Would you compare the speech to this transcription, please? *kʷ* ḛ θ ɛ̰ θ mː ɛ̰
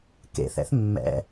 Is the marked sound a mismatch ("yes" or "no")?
yes